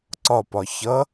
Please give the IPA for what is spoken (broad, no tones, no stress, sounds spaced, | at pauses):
ǀ ɒ p ɒ ç ʌ